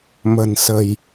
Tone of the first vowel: low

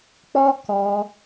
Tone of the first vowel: high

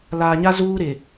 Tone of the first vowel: low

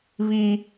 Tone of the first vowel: high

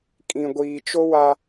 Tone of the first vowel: low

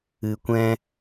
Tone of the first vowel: low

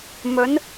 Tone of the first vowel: rising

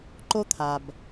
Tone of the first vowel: high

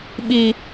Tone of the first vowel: low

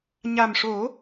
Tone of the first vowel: low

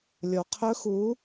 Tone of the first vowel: low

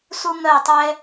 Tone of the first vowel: high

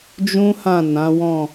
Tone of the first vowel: high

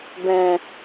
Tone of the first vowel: low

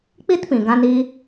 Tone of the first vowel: high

